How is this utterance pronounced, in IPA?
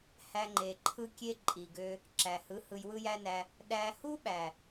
h æ˧ ŋ͡ǃ e˨ ǃʰ ɯ˦ kʲ e˦ ǃʼ i˨ ɡ ø˧ | ǁ æ˨ h ɯ˨˦ h ɯ˧ j w ɯ˦ j æ˦ n æ˧ | ɗ æ˦ h u˦ ɓ æ˨

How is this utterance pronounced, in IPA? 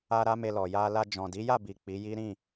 a˦ ɾ a˦ m e˧ l ɔ˨ j a˧ l a˧ d͡ʒ ɔ̃˨ d i˨˦ j a˦˨ b i˨ k͡p i˨˦ j i˦ ɾ ĩ˦˨

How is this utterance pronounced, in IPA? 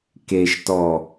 k e ʃ t ɔ

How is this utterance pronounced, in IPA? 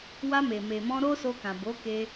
w a˧ m e˨ m e˨ m ɔ̃˧ ɾ o˦ s o˧ k ã˨ b o˨˦ k e˧

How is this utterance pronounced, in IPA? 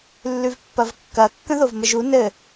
lː ʉ v pː ɐ v kː ɐ kː ə̃ ð o v m ə ʒ u n ɘ

